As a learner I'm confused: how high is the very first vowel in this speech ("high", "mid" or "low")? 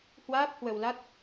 low